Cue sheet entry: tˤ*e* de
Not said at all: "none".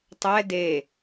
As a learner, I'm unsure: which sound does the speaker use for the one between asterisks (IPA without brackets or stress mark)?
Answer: ɛ